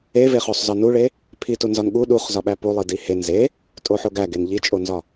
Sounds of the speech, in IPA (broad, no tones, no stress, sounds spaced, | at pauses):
e v e χ o sˤ z ɒ n u ɭ e | pʰ i t u n z ɒ n ɠ u ɗ u χ z ɒ ɓ æ p u lˠ i d i h e n z e | tʼ o ħ o ɡ æ ɡ e n ʎ i t͡ʃʼ o n z ɒ